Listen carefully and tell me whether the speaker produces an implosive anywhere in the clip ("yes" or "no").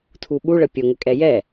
yes